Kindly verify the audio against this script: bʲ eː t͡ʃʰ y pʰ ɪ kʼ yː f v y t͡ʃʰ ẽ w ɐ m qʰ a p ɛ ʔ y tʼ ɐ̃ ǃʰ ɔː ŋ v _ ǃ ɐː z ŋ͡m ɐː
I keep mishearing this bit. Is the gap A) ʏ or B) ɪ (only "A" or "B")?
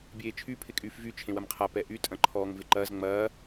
B